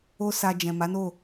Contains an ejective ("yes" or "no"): no